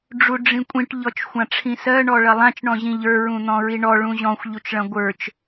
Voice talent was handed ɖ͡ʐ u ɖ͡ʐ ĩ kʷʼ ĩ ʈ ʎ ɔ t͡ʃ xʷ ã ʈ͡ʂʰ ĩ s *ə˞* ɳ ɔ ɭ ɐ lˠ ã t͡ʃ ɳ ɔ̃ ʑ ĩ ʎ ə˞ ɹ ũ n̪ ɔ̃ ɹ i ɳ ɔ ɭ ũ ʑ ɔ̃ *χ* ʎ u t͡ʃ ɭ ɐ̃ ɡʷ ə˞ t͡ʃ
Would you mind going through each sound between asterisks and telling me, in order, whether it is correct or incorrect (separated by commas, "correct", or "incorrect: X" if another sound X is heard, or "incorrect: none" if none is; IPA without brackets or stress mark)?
incorrect: ɜ, incorrect: xʷ